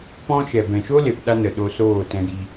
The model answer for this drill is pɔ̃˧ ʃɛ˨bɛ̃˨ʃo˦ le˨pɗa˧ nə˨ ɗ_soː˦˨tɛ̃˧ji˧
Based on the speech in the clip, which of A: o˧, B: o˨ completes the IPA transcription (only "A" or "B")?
A